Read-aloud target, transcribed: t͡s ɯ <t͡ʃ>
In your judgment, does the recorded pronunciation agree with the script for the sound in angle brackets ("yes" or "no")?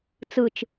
yes